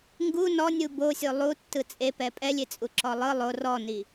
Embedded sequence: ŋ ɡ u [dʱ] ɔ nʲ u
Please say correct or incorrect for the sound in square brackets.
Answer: incorrect